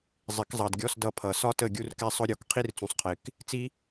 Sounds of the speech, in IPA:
zˤ ɪ˨˩˦ k zˤ ɑ˨ d ɡʲ ɔ˧˥˧ s d ʌ˦˨ pʰ ʌ˨˩˦ s ɒ˥ t ə˦˨ ɡʲ u˥ r k ɛ˥ sˤ ʊ˥ ɾʲ ɔ˩˥ k qʰ i˥ r t͡s ũ˨ sˤ qʰ ɪ˨˩˦ k | t͡s i˥

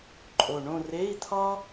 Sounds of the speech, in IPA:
ǃʼ o˨˩ ɳ õ˥˧ r e˧˥˧ i̯ t̪ʰ ɒ˥

